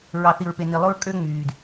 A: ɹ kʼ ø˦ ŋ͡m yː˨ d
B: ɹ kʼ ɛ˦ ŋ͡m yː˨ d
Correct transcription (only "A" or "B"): A